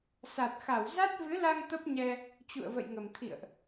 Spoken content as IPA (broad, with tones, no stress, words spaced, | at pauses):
sa˨˩t̚xa˧˩wza˦˥t̚ vɨ˨˦la˧ŋ t̪ə˦˥p̚ɲɛ˧ | t͡ɕṵ˧˨ə̯və̰˧˨jŋə˨˩m t̪ʰḭ˧˨ə̯ʔ